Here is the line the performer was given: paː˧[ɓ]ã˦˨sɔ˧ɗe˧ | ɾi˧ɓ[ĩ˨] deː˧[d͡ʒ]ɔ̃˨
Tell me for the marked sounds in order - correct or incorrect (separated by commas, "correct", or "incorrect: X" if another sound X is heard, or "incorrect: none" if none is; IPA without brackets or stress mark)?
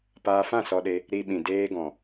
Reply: incorrect: f, correct, incorrect: ɡ